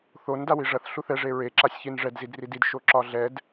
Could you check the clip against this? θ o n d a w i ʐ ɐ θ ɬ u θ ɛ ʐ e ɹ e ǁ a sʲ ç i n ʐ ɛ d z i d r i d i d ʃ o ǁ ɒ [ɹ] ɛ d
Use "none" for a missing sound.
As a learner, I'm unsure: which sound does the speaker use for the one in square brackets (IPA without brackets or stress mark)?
ɮ